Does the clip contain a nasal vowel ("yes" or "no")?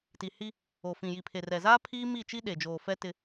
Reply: yes